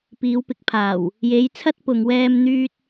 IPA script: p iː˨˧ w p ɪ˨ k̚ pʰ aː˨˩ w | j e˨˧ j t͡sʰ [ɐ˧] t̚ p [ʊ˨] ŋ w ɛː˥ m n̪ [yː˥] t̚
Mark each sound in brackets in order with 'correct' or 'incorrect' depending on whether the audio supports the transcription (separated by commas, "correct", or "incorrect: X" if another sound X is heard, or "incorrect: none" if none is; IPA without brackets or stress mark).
incorrect: ɐ˥, correct, correct